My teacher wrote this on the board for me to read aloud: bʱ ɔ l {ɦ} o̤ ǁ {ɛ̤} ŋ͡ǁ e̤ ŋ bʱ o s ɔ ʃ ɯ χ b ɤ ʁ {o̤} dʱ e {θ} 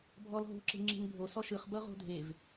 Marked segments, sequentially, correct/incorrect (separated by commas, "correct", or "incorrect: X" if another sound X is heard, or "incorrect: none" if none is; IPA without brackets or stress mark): correct, incorrect: e̤, correct, incorrect: v